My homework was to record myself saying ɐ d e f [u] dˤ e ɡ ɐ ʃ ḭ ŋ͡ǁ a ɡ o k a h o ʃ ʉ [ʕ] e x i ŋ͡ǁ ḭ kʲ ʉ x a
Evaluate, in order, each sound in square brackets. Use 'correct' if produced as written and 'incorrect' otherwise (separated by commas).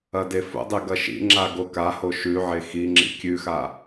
incorrect, correct